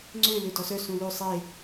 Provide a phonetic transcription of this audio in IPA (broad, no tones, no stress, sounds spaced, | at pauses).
ŋ͡ǀ ø l ø d ɔ s œ s ũ l ø sˤ e